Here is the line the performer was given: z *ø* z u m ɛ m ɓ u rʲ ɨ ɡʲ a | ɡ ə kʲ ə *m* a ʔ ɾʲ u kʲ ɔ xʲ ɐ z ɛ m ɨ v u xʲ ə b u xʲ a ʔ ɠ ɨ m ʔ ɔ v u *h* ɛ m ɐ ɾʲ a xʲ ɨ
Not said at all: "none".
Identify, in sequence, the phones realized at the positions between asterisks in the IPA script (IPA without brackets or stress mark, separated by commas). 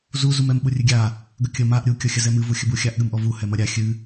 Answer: u, m, h